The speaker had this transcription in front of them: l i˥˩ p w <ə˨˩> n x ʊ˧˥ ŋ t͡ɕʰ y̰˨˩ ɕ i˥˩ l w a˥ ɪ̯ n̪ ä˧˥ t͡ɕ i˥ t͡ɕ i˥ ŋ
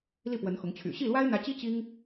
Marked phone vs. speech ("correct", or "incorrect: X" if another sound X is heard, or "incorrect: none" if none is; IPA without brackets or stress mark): incorrect: ə˧˥